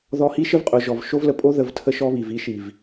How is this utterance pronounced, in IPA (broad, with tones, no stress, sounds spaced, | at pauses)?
ð ɔ˧ h i˦ ʃ ə˦ v qʼ ʊ˨ ʒ ɔ˨ v ʃ o˦ v l ə˧ pʼ o˦ ð ə˧ v tʰ ə˦ ʃ ɔ˦ β i˨ v i˦ ʃ i˨ v